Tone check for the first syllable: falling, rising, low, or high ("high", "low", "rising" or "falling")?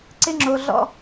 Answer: high